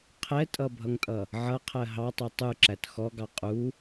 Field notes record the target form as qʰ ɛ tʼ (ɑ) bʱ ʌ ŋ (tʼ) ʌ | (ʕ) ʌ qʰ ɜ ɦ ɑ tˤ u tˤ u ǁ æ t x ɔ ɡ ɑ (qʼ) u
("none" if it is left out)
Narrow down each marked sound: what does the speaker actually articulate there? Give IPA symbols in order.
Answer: ʌ, tʼ, ʕ, qʼ

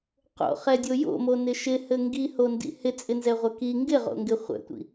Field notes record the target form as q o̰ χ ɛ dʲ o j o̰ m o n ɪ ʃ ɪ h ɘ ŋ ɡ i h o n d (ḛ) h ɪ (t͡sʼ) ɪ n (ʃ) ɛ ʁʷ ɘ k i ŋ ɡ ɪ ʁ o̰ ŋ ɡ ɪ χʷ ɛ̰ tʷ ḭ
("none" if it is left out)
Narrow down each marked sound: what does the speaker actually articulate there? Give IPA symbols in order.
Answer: ḭ, t͡sʼ, z

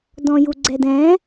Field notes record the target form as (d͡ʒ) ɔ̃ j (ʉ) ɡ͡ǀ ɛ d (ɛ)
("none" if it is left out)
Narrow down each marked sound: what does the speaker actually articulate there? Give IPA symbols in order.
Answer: d, u, ɛ̃

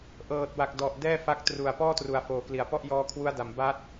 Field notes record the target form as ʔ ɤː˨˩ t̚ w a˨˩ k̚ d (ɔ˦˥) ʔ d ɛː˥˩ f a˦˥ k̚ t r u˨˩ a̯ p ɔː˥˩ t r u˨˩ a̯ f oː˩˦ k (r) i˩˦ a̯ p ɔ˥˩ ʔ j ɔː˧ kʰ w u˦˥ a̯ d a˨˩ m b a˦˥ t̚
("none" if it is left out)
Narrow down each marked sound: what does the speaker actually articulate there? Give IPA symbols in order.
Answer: ɔ˨˩, l

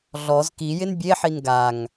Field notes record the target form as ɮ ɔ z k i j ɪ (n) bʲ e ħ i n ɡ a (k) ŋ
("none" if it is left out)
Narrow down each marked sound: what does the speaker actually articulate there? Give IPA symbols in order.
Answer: n, none

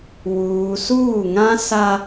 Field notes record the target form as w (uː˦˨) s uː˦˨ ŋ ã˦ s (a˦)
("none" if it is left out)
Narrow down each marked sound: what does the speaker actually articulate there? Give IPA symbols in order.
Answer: uː˨, a˦

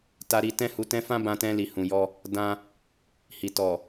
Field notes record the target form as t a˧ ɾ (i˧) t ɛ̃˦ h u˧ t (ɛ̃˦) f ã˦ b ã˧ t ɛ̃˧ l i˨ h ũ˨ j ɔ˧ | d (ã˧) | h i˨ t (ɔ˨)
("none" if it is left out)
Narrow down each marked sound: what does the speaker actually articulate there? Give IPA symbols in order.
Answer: i˧, ɛ̃˦, ã˧, ɔ˨

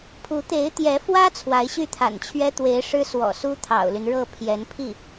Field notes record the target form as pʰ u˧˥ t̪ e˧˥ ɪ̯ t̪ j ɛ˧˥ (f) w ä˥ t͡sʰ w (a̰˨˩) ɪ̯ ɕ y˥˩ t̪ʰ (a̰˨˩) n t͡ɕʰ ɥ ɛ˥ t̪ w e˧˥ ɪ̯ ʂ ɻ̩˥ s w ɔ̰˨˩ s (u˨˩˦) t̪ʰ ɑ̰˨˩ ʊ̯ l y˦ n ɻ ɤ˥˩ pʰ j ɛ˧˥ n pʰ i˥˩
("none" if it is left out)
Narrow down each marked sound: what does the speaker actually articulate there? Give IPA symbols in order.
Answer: f, a˧˥, a̰˨˩, u˥

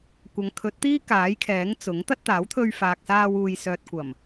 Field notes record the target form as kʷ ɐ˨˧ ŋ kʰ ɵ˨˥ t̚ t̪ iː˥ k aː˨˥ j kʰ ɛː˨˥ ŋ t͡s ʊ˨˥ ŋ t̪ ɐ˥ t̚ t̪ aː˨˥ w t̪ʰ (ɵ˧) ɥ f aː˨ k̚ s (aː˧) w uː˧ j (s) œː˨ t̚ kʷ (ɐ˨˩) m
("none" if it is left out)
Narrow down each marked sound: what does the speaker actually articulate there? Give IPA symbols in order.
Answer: ɵ˧, aː˧, s, ɐ˨˩

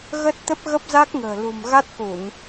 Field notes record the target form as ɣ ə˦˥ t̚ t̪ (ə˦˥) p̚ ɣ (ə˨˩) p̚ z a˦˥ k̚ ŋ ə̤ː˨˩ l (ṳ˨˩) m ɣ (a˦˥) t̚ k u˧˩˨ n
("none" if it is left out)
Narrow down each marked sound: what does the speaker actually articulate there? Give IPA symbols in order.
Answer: ə˦˥, ə˦˥, ṳ˨˩, a˦˥

